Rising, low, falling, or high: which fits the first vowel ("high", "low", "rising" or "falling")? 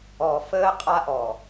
low